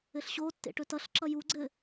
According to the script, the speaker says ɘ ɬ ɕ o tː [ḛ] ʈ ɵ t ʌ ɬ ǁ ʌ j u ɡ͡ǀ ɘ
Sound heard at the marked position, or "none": ḛ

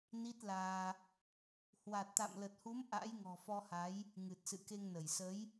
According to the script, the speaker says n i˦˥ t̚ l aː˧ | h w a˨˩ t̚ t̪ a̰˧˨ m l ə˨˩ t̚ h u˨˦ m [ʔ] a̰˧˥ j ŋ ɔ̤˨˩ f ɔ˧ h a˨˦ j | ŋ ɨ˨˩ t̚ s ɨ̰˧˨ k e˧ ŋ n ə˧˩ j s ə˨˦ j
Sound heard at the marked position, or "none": ʔ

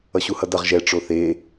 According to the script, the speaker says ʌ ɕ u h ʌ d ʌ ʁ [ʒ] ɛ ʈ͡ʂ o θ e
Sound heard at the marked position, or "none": ʒ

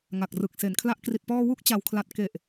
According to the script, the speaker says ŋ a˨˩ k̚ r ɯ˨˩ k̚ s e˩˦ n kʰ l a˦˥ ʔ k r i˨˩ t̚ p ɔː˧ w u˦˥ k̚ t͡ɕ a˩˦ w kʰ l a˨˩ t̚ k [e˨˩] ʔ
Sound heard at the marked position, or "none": e˨˩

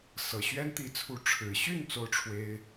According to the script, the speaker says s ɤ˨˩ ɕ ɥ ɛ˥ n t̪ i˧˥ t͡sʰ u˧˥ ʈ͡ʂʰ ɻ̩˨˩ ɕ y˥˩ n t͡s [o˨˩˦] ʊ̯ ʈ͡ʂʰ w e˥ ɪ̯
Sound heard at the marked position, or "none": o˥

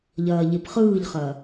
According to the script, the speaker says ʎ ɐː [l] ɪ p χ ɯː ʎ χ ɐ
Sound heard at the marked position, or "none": ʎ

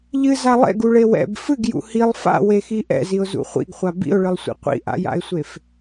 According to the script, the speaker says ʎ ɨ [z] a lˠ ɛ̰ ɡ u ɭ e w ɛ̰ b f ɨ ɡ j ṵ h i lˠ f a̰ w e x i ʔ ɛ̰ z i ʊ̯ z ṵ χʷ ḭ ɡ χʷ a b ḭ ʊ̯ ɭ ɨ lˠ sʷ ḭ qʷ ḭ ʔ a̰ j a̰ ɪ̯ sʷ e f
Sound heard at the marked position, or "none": z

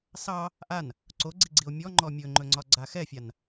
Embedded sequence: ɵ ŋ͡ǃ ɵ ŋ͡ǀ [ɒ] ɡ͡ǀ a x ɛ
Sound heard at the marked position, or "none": ɒ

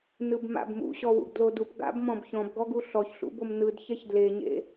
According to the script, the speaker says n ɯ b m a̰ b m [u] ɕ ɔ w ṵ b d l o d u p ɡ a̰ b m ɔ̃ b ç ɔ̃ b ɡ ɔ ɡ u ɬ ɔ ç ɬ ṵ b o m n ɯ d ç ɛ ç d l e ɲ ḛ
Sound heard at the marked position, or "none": ṵ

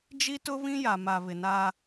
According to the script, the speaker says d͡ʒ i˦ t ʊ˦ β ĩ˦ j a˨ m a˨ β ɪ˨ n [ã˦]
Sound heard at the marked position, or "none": a˦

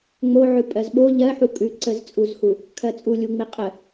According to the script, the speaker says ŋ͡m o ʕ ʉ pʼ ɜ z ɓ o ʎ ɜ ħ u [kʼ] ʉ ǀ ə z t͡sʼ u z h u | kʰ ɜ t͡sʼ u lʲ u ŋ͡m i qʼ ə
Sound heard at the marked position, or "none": kʼ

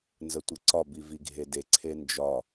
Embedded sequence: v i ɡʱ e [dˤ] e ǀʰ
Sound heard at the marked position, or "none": d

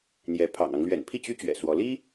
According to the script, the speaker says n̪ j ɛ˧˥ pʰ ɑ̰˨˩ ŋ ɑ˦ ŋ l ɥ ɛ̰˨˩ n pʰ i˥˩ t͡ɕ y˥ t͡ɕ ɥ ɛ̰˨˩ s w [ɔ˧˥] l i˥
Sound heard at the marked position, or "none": ɔ˧˥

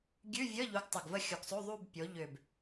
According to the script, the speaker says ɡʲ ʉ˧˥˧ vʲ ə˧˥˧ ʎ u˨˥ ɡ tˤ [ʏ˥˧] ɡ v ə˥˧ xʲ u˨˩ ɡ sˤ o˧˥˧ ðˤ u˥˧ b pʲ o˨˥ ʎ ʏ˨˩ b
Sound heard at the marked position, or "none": ʏ˨˩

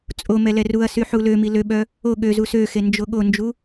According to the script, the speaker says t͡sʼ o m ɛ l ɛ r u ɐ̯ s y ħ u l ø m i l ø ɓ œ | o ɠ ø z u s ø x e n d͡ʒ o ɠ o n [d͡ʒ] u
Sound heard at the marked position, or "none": d͡ʒ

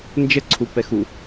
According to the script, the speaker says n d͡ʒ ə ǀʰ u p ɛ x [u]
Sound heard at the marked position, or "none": u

